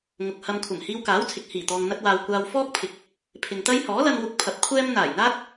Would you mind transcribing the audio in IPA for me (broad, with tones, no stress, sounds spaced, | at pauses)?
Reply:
ŋ ʊ˨ k̚ h ɐ˧ m kʷʰ ɐ˨˩ m h iː˧ w k aː˨˥ w t͡sʰ ɪ˨ k̚ h iː˨˩ t̪ ɔː˨ ŋ n̪ ɐ˧ t̚ w aː˨ w kʷ aː˧ w f ɔː˥ k̚ pʰ ɪ˨˥ k̚ | pʰ ɪ˨ ŋ t̪ ɐ˥ j h ɔː˨˥ l ɐ˧ n w ʊ˧ k̚ pʰ ɐ˧ p̚ kʷʰ ɛː˥ m n̪ aː˨˩ j n̪ aː˥ t̚